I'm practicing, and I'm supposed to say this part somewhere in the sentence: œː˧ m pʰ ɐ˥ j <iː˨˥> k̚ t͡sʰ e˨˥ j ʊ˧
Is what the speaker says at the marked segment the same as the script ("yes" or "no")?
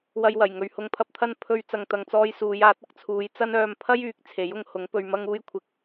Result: no